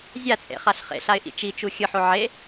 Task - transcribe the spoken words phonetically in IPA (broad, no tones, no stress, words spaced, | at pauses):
zʲat͡sʼḛχaɬ χḛɬaɪ̯ʔḭ t͡ʃit͡ʃu xʲɯħo ʕe